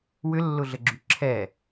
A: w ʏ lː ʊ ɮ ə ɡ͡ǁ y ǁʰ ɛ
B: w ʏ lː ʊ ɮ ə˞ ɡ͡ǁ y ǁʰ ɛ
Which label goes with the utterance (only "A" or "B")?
A